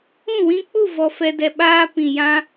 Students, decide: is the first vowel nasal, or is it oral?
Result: nasal